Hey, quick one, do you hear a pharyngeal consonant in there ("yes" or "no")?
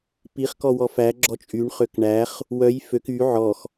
yes